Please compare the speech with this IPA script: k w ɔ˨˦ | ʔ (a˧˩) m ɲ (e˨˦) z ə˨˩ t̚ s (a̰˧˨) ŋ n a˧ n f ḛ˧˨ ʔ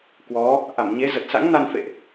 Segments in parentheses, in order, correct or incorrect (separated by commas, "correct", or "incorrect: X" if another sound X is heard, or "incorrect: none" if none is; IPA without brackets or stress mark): correct, correct, incorrect: a̰˧˥